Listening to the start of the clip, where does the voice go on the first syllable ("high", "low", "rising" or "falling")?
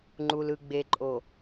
low